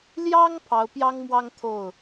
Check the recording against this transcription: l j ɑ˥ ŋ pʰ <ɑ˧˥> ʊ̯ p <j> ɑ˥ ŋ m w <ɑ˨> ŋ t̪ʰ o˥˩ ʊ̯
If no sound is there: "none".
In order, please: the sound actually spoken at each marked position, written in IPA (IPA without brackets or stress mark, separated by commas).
ɑ˧˥, j, ɑ˥